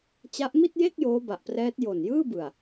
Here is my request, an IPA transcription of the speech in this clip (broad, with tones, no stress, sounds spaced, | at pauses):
t͡ɕ a˦˥ ʔ m i˥˩ t̚ j e˥˩ k̚ j oː˦˥ b a˨˩ ʔ p r ɛː˦˥ t̚ j o˨˩ n j ɯː˥˩ b ɯ˨˩ a̯